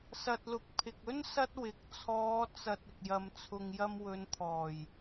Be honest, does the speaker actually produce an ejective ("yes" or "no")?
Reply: no